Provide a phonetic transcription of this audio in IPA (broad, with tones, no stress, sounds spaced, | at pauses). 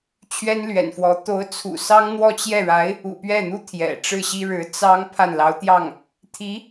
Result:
t͡ɕʰ ɥ ɛ˥ n l ɥ ɛ̰˨˩ n f w ɔ˧˥ t̪ o˧˥ ʊ̯ t͡sʰ ṵ˨˩ s ɑ˥ ŋ n̪ w ɔ˥˧ t͡ɕ j ɛ˥˩ ɻ a˧˥ ɪ̯ | ṵ˨˩ p ɥ ɛ˥˩ n̪ u˥ t̪ʰ j ɛ̰˨˩ ʈ͡ʂ ɻ̩˥˩ ɕ i˥ ɻ ɻ̩˧˥ t͡s ɑ˥ ŋ pʰ a˥˩ n l ɑ˧˥ ʊ̯ t̪ j ɑ˥˩ ŋ | t̪ʰ i˧˥